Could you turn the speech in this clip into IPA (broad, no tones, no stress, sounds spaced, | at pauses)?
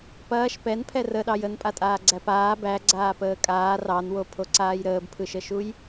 p ɐː ʃ p ɛ n pʰ ɛ r ə ɗ ɑ j ə n pʼ a tʼ aː ɡ͡ǀ æ p aː b æ ɡ͡ǀ aː p əː kʼ aː r ɑ n w o pʰ o ǀ aː j ɾ əː b pʰ ɯ ʃ ə ʃ u j